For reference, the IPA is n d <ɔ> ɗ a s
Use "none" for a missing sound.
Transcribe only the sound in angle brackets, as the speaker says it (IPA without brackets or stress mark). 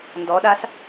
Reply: ɔ